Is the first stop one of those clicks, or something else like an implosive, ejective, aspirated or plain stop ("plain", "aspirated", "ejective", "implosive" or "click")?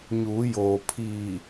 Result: aspirated